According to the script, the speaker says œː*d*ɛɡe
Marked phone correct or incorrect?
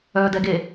correct